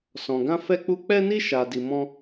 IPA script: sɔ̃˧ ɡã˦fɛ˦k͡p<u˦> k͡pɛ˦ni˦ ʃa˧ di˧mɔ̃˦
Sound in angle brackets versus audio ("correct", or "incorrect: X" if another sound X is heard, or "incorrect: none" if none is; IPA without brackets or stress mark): correct